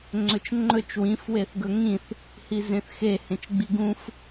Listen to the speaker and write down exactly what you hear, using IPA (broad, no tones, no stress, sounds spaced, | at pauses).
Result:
ŋ͡ǀ ɵ t͡ʃ ŋ͡ǃ ɵ t͡ʃ w ĩ f w e θ ɡ ɵ ŋ ĩ θ | h i z ẽ θ x e h ẽ t͡ʃ ɡ͡b i ɡ ũ f